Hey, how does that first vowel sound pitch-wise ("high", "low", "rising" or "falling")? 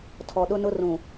low